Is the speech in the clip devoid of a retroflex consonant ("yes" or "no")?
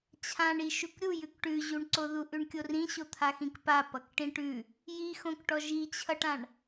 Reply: no